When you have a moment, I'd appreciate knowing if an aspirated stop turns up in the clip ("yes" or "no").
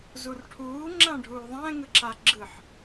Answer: yes